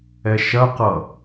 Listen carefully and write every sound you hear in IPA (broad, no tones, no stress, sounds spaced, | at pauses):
ɛ ʃ ɐ q ʌ